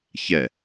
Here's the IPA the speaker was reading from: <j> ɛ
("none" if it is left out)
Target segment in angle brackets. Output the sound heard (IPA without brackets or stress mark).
ç